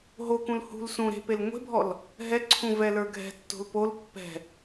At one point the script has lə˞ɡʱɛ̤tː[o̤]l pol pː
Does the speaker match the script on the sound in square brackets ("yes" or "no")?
yes